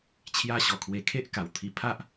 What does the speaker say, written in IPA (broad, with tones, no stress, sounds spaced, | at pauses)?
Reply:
t͡ɕʰ j a˦ ɕ ɔ˨˩ kʰ w e˧ kʰ e˦ ʔ k a˨˩ w t̪ʰ i˧ pʰ a˦ ʔ